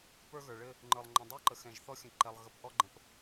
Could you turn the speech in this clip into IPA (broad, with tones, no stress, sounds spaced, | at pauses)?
p ə˞˦ ɣ ə˞˨ ɭ ɘ˦ | ŋ͡ǃ ə˞˨ lˠ ŋ͡ǃ ɔ̃˨ dˤ ə˞˦ ǃ ə˨ x ɛ̃˨ ʒ θ ɔ˦ xʲ ə̃˨ ǃ ɛ˨ lˠ ɣ ə˨ p ʔ ɔ˦ ɡ͡ǃ ə̃˨ p